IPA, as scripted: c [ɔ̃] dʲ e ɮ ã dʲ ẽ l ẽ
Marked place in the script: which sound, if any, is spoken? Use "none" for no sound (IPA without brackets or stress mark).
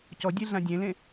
ɔ